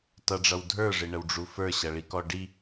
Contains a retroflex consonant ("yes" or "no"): yes